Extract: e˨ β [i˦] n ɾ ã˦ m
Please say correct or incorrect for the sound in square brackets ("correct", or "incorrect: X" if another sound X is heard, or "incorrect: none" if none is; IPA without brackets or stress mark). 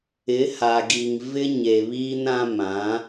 incorrect: iː˦